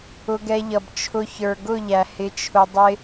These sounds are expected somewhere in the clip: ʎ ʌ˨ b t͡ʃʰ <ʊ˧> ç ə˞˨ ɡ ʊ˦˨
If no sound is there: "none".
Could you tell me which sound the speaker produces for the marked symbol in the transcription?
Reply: ʊ˧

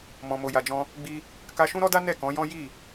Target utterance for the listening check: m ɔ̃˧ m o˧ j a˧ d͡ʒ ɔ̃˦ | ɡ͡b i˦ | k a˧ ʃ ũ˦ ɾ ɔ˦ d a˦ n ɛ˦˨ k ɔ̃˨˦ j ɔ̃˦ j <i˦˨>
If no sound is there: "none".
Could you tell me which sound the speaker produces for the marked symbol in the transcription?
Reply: i˦˨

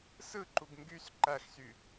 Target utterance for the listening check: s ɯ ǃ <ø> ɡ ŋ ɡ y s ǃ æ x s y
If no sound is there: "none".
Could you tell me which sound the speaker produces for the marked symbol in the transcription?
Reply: u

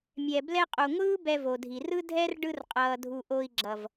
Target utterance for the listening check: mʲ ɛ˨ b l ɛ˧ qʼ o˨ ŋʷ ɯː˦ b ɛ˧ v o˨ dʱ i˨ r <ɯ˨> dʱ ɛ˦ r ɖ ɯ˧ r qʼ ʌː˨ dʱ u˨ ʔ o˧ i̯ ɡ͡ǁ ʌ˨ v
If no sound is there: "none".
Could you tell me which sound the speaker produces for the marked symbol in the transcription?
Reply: ɯ˦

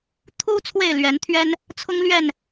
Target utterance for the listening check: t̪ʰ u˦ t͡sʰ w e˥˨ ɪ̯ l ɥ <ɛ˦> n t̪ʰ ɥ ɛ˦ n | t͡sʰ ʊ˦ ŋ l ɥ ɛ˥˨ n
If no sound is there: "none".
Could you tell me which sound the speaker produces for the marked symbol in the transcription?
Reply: ɛ˨˦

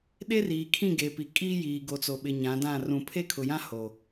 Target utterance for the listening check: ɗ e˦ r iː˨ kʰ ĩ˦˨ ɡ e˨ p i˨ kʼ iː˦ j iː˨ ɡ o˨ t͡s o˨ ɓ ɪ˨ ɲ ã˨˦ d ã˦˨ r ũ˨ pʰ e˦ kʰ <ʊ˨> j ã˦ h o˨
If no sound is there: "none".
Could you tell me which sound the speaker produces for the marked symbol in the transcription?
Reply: ʊ˨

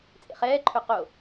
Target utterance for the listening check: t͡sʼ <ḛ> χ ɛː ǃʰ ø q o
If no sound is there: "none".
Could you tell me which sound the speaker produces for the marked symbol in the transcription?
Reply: ḛ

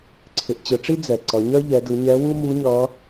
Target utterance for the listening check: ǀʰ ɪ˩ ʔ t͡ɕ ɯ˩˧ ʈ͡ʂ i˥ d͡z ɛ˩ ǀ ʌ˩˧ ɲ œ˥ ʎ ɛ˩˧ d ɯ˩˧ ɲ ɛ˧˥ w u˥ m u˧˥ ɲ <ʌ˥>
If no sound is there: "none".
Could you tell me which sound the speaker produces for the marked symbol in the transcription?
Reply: ʌ˧˥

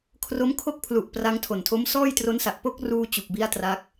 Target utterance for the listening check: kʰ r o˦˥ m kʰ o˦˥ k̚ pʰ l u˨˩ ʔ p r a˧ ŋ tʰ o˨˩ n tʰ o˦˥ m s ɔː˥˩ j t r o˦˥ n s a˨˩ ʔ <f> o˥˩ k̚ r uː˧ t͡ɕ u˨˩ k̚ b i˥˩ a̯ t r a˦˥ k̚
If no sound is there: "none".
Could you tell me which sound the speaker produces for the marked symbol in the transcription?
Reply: p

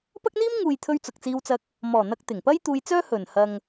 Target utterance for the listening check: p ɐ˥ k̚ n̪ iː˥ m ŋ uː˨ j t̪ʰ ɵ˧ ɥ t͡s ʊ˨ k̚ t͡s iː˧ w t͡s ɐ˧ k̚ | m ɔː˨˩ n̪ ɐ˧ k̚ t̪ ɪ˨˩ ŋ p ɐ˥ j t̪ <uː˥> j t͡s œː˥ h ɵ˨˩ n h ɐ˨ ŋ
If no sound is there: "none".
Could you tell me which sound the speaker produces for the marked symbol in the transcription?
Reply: uː˧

